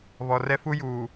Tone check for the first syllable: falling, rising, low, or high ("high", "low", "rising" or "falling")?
low